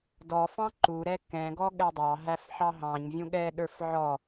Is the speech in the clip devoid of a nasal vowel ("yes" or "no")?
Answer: no